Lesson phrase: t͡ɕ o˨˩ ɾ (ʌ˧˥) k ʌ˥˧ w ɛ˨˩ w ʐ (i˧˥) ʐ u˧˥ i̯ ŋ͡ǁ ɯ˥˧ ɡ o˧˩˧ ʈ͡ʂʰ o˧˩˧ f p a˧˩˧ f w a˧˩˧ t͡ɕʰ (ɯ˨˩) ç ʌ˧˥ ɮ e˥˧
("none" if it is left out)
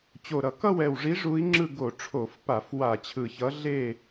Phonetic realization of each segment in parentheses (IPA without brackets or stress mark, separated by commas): ʌ˧˩˧, i˧˥, ɯ˨˩